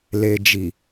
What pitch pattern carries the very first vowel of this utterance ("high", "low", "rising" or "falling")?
low